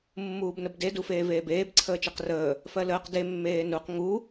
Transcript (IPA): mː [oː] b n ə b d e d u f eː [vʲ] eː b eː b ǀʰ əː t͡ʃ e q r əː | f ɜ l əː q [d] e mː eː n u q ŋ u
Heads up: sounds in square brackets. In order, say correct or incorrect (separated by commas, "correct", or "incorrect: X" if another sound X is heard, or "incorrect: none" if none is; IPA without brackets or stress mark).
incorrect: uː, incorrect: v, correct